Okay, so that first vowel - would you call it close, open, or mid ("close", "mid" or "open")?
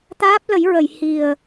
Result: open